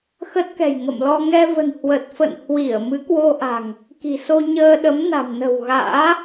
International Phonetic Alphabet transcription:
x ə˦˥ t̚ k ɛ̤˨˩ j ŋ ə̰˧˨ m l ɔ˧ ŋ ɛ˧ v ə̤˨˩ n h w ə˨˩ t̚ f ə̰˧˨ n h w i˧˩ ə̯ m ɨ˨˦ k w o˧ ʔ a̤˨˩ ŋ | k i̤˨˩ s o˧ ɲ əː˧ ɗ ə˨˦ m n a̤˨˩ m n ə̤˨˩ w ɣ a̰ː˧˥

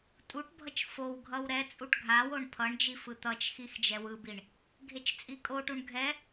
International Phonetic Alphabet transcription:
tʼ u ʈ bʱ ʌ t͡ʃ f o w ɡʱ ʌ w ɾ ɛ t͡sʼ u ʈ ɡʱ a w o ɳ pʰ ʌ ɳ d͡ʒ i f ɯ t̪ ʌ t͡ʃ x i x d͡ʒ ɛ w ɯ b i ɳ | ɡʱ e t͡ʃ t͡sʼ i kʼ o ʈ u ɳ ɡʱ ɛ

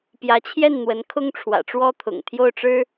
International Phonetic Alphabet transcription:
p j ä˧˥ t͡ɕʰ j ɛ˥˩ n n̪ w ə˧˥ n kʰ ʊ˥ ŋ ʈ͡ʂʰ w ä̰˨˩ ʈ͡ʂ w ɔ˥ t̪ʰ ʊ̰˨˩ ŋ t̪ʰ j o˥˩ ʊ̯ ʈ͡ʂ ɻ̩˥

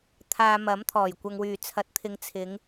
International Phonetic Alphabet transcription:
t̪ʰ aː˧ m ɐ˨˥ m t̪ʰ ɔː˨˩ j kʷ ɐ˧ ŋ w yː˨ t͡sʰ ɐ˨˥ t̚ t̪ʰ ɪ˨˧ ŋ t͡sʰ ɪ˨˧ ŋ

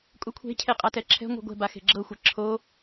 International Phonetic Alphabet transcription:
kʼ u kʷʰ e̤ cʰ e qʼ a t ɛ ǁʰ ɛ̤ ŋʷ e̤ ɡʷ ɛ̤ b a x e̤ ɡ͡ǁ ɤ xʷ ɛ ǁʰ o

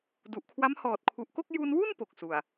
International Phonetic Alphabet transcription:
d u˨˩ ʔ kʰ w a˦˥ m h ɔː˨˩ t̚ kʰ u˨˩ ʔ k o˥˩ k̚ j u˧ n w u˥˩ n p o˨˩ k̚ s u˨˩ a̯

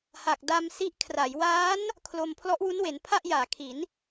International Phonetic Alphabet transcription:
h a˨˩ k̚ d a˧ m s i˦˥ ʔ kʰ r a˩˦ j w aː˦˥ n | kʰ l o˧ m pʰ l ɔ˦˥ ʔ w u˦˥ n w e˩˦ n pʰ a˥˩ ʔ j aː˩˦ kʰ i˩˦ n

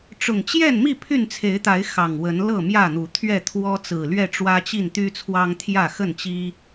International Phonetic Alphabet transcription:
ʈ͡ʂ ʊ˨˩ ŋ t͡ɕ j ɛ˥˨ n m i˥˨ pʰ y˥˨ n t͡sʰ e˨˦ ɪ̯ t̪ a˨˦ ɪ̯ x ɑ˨˩ ŋ w ə˨˦ n l ɤ˥˨ m j ä˥˨ n̪ u˨˦ t̪ʰ ɥ ɛ˥˨ t̪ʰ w ɔ˦ t͡s ɹ̩˨˩ l ɥ ɛ˥˨ ʈ͡ʂ w ä˦ t͡ɕ i˥˨ n t̪ y˦ t͡sʰ w ɑ˦ ŋ t̪ʰ j ä˥˨ x ə˥˨ n t͡ɕ i˦

